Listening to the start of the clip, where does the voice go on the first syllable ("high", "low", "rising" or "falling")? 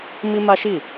high